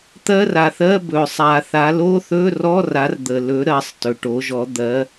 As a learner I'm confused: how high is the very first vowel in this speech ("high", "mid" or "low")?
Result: mid